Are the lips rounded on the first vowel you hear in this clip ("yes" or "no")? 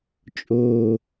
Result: yes